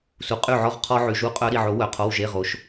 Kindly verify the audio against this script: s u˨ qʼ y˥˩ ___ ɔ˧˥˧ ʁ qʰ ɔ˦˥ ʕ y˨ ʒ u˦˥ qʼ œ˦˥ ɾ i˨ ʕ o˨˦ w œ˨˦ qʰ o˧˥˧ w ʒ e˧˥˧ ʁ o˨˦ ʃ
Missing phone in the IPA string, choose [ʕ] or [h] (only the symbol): ʕ